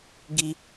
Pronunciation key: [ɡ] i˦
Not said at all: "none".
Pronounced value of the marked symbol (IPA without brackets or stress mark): ɡ